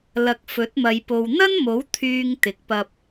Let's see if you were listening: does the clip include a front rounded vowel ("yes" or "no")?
yes